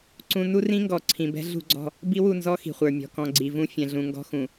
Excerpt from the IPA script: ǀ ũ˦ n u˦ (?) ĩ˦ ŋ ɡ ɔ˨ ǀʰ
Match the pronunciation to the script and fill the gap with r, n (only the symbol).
r